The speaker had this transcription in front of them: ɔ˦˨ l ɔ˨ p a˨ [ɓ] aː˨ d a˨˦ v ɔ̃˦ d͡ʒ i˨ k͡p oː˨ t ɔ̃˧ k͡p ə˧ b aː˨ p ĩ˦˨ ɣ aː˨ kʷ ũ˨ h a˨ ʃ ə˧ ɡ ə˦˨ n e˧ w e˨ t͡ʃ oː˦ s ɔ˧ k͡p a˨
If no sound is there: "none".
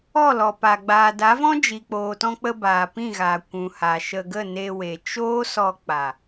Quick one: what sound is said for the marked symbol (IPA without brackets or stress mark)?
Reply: ɡ͡b